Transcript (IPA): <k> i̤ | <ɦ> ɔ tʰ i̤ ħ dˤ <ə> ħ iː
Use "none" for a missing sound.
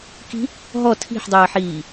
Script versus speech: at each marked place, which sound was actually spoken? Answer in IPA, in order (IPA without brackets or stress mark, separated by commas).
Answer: k, ɦ, əː